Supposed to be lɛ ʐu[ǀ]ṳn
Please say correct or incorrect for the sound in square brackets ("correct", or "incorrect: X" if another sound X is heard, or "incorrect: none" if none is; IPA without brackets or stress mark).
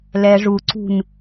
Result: correct